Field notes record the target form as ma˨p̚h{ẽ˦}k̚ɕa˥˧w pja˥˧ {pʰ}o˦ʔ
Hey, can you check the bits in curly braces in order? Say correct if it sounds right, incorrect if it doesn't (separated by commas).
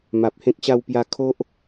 correct, incorrect